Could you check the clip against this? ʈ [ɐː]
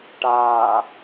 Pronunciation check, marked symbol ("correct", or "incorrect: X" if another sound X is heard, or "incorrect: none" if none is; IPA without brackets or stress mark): incorrect: aː